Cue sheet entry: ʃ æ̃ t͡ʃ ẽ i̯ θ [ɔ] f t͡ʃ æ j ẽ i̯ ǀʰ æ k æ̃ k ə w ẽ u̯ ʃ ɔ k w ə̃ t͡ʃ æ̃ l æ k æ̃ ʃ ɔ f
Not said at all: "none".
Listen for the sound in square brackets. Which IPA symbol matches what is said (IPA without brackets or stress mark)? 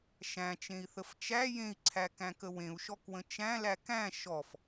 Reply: ə